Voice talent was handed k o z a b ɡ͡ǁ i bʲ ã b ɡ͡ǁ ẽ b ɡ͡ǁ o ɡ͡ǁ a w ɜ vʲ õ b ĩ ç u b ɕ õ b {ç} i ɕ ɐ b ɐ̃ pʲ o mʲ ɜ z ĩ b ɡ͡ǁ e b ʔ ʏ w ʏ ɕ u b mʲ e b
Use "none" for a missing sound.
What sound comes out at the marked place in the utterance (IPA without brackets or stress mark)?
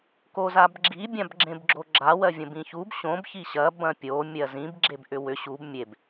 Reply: ç